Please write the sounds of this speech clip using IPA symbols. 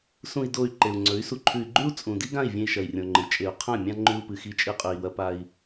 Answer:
s ũ˨ i̯ d o˨ y̯ ǃ e˨ u̯ ŋ͡ǀ ɵ˨˦ y̯ s u˨ ǃʰ ʉ˨ y̯ ɡ͡ǃ ʉ˦ u̯ t͡sʼ ũ˨ d i˦ ɡ ã˦˨ i̯ vʲ ẽ˦ i̯ ʃ ɐ˨ i̯ rʲ õ˨ ŋ͡ǃ ɨ˨ t͡ʃʼ e˨ u̯ qʰ ã˦˨ mʲ ã˦ ŋ͡ǃ ʉ˦ u̯ p ɨ˨ x i˦ t͡ʃʼ ɨ˦ qʼ ʉ˨ i̯ w ɐ˦ p a˦ i̯

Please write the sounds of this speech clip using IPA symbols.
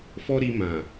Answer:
f ɔ˦ ɾ i˧ m ã˨

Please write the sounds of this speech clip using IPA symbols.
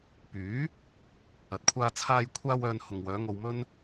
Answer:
p yː˨˥ | ɐ˨ t̚ kʷʰ aː˧ t͡sʰ aː˧ j kʷʰ aː˧ w œː˨ n h ʊ˨ ŋ w œː˨˧ ŋ o˧ w m ɵ˥ n

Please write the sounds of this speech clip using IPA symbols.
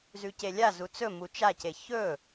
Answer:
z ʉ c e lʲ a z u t͡s ɵ m u t͡ʃ a c e ç ɵ

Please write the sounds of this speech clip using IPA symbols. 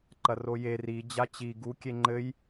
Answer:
ǃ ɐ r o j e r i d͡ʑ a t͡ɕ i ɡ u kʲ e ŋ͡ǃ ɘ j

